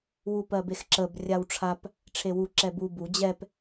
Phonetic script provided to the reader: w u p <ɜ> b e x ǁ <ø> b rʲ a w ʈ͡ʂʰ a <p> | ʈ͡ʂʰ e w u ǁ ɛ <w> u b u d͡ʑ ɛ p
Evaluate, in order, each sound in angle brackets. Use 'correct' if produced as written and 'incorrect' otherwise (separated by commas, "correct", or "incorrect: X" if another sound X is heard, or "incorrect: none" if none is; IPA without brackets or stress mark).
correct, incorrect: ə, correct, incorrect: b